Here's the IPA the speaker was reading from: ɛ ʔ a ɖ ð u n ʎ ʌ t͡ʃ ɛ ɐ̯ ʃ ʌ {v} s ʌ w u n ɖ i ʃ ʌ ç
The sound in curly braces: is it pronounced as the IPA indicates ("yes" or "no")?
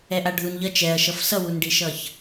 no